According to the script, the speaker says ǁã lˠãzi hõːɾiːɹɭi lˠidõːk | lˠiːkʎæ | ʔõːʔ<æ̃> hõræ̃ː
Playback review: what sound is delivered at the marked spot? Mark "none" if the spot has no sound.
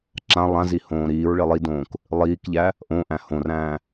æ̃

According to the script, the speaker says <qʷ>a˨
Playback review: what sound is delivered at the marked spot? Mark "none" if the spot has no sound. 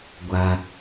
ɡʷ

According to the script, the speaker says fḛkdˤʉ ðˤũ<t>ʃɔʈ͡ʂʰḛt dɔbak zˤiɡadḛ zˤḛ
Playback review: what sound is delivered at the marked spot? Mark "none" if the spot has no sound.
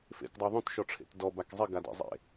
t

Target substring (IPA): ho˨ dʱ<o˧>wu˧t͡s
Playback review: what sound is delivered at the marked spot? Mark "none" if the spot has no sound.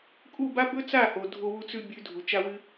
o˧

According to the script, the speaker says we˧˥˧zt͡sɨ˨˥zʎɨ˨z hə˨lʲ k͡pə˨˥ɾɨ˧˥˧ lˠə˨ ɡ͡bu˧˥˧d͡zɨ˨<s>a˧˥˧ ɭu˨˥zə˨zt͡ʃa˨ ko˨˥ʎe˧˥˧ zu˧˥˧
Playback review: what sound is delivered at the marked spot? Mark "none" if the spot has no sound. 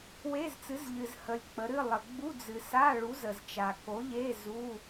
s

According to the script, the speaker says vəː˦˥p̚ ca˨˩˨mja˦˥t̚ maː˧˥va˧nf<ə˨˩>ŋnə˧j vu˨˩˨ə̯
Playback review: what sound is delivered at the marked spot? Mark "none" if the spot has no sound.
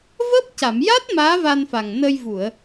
a˨˩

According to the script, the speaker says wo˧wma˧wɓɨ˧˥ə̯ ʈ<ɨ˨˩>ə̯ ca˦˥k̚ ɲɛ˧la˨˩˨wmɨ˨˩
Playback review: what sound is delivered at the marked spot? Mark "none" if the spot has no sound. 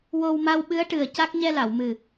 ɨ˨˩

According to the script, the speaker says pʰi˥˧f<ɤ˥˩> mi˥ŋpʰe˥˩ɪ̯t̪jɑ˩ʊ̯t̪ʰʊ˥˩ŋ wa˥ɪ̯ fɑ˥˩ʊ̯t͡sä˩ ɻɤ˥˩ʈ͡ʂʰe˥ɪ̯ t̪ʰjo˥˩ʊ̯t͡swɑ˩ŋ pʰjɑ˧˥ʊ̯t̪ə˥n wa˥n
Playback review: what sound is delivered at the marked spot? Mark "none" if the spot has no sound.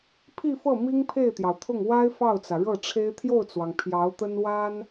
ɤ˥˩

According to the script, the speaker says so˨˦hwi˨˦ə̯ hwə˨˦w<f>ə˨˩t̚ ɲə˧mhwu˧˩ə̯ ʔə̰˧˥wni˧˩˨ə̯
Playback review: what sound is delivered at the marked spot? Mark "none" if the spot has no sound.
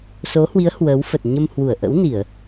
f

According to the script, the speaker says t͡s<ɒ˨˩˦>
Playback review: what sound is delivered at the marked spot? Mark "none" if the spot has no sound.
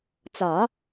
ɒ˨˩˦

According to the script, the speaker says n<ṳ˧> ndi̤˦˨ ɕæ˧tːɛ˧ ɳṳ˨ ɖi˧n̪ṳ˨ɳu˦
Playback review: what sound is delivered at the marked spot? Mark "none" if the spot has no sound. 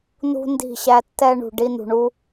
ṳ˧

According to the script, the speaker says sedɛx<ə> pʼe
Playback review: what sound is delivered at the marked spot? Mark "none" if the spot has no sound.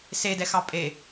ɑ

